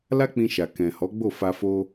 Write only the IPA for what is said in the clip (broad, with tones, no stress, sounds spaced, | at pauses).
l a˦ k͡p ĩ˧ ʃ a˨ k ɛ̃˨ h ɔ˨˦ ɡ͡b o˦˨ f a˧ f o˧